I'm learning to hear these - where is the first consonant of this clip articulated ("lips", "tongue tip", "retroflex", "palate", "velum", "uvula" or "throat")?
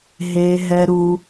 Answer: throat